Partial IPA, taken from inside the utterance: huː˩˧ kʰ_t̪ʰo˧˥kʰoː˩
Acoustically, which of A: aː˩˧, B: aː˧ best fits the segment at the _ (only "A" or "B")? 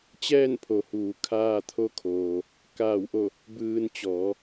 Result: B